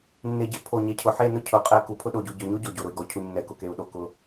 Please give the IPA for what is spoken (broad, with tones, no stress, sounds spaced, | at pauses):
nː e˨ ɟ ɪ˨ pʰ o˨ ɲ ɛ˨ cʰ ʊ˨ ħ e˦˨ n ʊ˦ cʰ ʊ˨ qʼ ɛ˦ k u˨ pʰ ʊ˦ ɗ o˨ ɟ u˨ ɟ ʊ˨ ɲ o˦ ɟ o˨ ɟ o˨ ɾ ʊ˨ i̯ ɡ ɔ˨ cʰ u˨ ɲ nː ɛ˨ k ʊ˨ k e˨ u̯ ɗ o˨ k ʊ˨˦